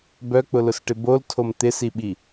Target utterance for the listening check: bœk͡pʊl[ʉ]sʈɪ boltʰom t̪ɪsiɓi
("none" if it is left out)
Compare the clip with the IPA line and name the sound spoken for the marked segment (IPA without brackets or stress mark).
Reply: ʊ